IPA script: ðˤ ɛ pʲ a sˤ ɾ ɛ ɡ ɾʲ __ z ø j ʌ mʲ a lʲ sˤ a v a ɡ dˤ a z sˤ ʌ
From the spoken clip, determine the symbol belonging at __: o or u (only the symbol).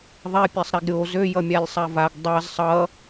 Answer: o